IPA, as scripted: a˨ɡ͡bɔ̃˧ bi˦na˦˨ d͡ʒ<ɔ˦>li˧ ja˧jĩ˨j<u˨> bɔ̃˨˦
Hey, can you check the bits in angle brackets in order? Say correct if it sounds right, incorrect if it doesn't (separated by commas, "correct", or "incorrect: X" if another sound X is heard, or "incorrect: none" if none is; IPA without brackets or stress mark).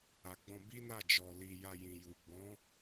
incorrect: ɔ˧, correct